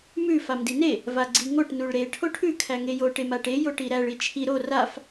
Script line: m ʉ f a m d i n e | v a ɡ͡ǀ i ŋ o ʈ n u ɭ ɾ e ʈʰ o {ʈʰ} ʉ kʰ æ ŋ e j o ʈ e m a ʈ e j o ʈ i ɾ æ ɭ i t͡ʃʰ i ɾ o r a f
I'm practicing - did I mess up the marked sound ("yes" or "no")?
no